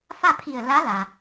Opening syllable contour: falling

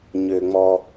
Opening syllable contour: low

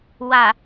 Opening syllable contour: low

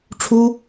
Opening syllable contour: high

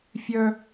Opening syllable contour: high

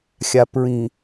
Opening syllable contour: low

